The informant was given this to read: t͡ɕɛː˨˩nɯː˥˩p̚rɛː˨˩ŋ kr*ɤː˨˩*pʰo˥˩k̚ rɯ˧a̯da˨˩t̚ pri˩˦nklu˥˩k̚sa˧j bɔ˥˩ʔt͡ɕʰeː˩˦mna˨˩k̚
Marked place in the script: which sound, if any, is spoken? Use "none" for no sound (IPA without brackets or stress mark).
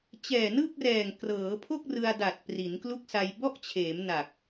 ɤː˩˦